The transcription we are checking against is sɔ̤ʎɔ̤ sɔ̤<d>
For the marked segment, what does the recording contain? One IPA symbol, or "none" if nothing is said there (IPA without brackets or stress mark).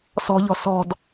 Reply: d